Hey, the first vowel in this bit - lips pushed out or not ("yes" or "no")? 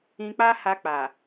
no